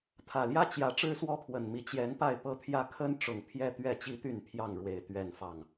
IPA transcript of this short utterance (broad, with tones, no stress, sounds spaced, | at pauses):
t̪ʰ ä˨˩ l j ä˦ t͡ɕ j ä˨˦ ʈ͡ʂ ɻ̩˦ s w ɔ˦ pʰ w ə˨˩ n m i˨˦ t͡ɕ j ɛ˨˦ n p a˥˨ ɪ̯ p ɤ˥˨ t̪ʰ j ä˦ kʰ ə˦ n ʈ͡ʂ ʊ˨˩ ŋ pʰ j ɛ˦ t̪ ɥ ɛ˥˨ t͡ɕ i˦ t̪ y˥˨ n pʰ j ɑ˥˨ ŋ ɻ w e˨˩ ɪ̯ t̪ ɥ ɛ˥˨ n f ɑ˥˨ ŋ